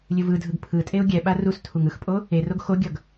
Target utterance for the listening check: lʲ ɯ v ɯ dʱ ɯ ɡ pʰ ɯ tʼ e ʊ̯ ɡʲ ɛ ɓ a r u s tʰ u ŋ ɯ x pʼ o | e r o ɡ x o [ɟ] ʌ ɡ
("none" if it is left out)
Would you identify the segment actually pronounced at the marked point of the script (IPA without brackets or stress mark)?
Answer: ɡʲ